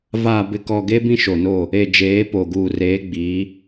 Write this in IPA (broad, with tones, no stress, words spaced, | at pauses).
vaː˨bɪ˨kɔ˨ ɡe˦bĩ˦ʃo˨no˦˨ | e˨d͡ʒeː˨˦po˨ ɡuː˨reː˨˦ɡ͡biː˨˦